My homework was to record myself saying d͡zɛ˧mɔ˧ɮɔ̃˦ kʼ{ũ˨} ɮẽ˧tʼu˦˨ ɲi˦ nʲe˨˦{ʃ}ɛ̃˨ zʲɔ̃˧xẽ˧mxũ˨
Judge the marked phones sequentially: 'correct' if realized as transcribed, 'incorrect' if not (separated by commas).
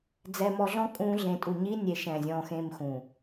incorrect, correct